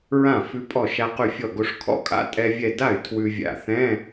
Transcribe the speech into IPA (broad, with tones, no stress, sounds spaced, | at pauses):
ɹ ã˥˩ f ʉ˧ pʼ ɔ˧˩ ʃ a˧ q ʉ˧˩ fʲ ɔ˧˩ ɡ o˧ ʂ kʰ ɔ̰˥˩ kʼ a̰˧˥˧ tʼ ɛ˧ vʲ ɛ˧˩ d a˥˩ y̯ tʰ w ʉ˧ vʲ a̰˧˩ θ ɛ̃˧˥˧